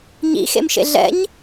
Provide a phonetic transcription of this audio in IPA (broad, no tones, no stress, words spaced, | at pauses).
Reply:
ɲḭxḛmʃḛ ɮɛ̰ɲ